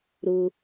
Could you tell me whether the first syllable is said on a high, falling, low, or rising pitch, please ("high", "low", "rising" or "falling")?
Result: high